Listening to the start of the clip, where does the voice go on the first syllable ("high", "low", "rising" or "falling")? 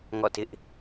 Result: falling